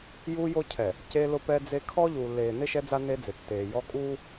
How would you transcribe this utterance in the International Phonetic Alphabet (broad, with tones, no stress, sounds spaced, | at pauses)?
j uː˦ j o˦ cʰ ɛ˨ | c e˦ l ʊ˦ p ɛ˦ d͡z e˦ kʰ ɔ˦ ʎ uː˨ lː eː˨ n ɪ˦ ʃ ɛ˦ d͡z a˦ n e˦ d͡z ɪ˨ tː eː˨ j ɔ˦ kʼ uː˦